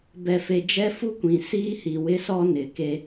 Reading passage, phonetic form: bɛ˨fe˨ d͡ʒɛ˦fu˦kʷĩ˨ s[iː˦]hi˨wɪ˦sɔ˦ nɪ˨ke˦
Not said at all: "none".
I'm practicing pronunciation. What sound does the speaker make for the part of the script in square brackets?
iː˦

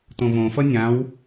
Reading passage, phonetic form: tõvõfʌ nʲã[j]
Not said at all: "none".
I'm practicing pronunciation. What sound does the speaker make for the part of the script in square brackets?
w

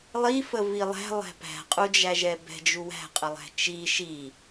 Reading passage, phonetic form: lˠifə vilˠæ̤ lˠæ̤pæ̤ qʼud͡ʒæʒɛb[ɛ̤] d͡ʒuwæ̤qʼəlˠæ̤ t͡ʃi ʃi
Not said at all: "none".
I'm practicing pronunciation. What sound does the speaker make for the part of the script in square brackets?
ɛ̤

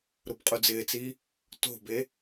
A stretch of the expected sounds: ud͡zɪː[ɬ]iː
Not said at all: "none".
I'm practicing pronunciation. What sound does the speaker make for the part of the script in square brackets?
t͡s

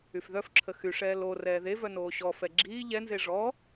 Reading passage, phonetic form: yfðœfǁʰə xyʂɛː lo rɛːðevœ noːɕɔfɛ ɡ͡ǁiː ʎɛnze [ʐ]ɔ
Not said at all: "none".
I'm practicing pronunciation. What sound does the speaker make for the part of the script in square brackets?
ʐ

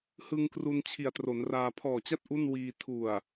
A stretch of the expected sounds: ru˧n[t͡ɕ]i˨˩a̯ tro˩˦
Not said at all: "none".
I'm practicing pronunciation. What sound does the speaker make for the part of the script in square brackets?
t͡ɕʰ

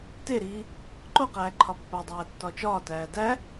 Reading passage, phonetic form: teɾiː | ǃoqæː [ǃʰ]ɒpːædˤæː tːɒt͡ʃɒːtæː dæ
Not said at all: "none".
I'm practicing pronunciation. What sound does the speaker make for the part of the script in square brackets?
ǃʰ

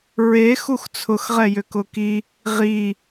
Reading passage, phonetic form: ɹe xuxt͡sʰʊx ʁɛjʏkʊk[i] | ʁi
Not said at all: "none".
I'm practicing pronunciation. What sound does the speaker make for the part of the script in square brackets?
i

